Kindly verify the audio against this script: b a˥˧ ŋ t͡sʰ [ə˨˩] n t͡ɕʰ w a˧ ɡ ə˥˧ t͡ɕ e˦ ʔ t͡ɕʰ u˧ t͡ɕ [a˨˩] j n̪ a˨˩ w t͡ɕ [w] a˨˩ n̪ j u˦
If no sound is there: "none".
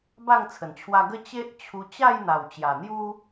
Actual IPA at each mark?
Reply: ə˨˩, a˥˧, j

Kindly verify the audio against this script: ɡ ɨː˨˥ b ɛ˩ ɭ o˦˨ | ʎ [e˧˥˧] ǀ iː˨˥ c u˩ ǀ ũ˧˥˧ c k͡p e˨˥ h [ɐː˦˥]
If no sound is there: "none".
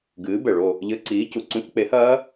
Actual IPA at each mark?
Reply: ɘ˧˥˧, ɐː˦˥

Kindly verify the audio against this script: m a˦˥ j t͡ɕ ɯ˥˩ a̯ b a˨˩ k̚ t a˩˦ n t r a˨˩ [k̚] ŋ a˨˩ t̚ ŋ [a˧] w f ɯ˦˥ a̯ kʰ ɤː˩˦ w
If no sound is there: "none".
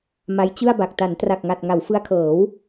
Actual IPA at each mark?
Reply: k̚, a˩˦

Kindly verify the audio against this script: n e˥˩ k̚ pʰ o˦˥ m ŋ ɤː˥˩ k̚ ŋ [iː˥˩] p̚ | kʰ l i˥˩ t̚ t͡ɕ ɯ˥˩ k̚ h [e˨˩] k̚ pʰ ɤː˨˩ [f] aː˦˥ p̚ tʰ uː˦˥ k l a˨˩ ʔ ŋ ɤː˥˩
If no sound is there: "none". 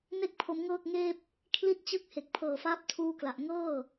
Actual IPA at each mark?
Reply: eː˥˩, e˨˩, f

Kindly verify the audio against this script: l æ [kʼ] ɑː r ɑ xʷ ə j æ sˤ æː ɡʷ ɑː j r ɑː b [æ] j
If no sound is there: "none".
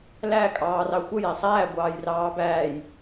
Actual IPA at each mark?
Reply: kʼ, æː

